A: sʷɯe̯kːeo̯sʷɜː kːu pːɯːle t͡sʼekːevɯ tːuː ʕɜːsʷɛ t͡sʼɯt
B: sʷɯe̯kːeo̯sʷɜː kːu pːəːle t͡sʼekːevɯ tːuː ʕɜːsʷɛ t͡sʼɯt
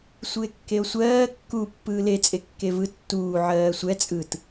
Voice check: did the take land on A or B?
A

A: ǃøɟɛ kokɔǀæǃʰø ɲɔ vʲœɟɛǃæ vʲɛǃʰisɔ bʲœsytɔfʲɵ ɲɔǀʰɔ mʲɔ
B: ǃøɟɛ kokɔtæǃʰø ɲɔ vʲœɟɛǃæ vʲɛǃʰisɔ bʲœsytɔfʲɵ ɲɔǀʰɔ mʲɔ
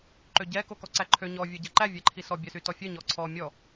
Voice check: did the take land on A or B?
A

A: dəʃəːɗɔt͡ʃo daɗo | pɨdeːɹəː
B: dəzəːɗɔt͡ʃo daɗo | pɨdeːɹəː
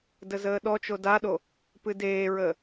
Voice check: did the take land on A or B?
B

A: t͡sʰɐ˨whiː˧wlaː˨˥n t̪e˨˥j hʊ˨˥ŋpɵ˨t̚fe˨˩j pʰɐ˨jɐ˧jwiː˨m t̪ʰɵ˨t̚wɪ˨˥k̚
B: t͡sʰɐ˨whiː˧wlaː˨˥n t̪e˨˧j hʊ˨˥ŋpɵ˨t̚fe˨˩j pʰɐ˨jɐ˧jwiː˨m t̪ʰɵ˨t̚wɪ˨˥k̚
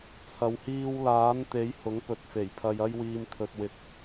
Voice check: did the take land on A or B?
A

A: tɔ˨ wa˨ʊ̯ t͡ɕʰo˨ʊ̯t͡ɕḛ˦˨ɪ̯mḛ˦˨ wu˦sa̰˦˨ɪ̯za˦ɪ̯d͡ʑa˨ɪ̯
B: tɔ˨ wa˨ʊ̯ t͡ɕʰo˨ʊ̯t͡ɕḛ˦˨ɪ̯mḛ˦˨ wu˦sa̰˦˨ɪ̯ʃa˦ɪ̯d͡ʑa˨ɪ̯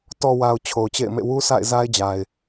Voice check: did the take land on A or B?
A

